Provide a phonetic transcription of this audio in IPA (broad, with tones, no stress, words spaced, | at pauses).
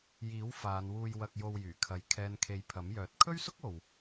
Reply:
jiː˨˥wfaː˨˧nwuː˧j wɐ˧k̚jo˧wjyː˨˩kʰɐ˨˧j kʰɛː˨nkʰe˨˧j pʰɐ˨˥mjœː˨˥t̚ kʰɵ˥ɥsʊ˥k̚ o˨w